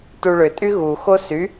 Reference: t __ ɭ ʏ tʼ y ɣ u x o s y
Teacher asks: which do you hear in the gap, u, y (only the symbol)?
u